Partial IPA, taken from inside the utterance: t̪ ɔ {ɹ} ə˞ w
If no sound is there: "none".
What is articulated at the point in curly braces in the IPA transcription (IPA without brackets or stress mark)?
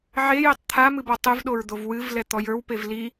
j